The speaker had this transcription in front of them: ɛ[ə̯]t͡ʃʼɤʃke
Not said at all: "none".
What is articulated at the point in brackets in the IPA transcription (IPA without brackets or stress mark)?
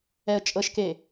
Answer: ə̯